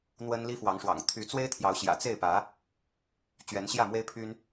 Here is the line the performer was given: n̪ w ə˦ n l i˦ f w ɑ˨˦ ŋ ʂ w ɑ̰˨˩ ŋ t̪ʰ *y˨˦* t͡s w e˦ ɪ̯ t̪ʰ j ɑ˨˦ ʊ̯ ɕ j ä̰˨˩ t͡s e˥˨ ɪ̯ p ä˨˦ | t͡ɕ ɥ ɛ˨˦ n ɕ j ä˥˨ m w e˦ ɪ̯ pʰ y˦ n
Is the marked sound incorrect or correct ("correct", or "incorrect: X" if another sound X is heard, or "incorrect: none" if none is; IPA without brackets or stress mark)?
correct